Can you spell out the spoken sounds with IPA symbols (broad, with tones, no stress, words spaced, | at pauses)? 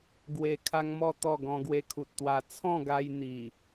ɡwe˧ kʰa˦ŋmɔ˥˧t̪ɔ˥˧ ɡɔ̃˧ɡwe˧kʰu˨t̚t̪wa˧ t͡sʰɔ̃˥˧ɡa˧jn̪i˨˩